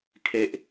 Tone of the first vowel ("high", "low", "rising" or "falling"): low